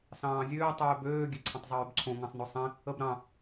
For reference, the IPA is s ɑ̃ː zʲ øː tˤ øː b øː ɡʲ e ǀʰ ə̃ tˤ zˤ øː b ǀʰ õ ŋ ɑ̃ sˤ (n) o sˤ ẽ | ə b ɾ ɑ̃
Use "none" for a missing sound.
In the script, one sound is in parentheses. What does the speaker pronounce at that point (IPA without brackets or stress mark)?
n